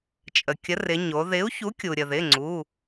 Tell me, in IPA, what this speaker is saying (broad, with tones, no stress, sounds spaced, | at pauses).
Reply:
t͡ʃʼ ə˩ kʲ ə˨˥ r ɪ˩˧ ɲ o˩˧ ð ɪ˨˥ u̯ ç u˨˥ kʲ u˩ ɾʲ ə˩ ð ɪ˩˧˩ ŋ͡ǀ u˩˧˩